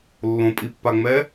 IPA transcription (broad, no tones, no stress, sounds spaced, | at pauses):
lː õ pʼ i pː a ŋ͡m ɛ